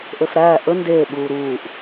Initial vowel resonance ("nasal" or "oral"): oral